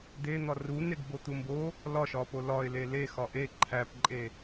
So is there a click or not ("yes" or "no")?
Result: yes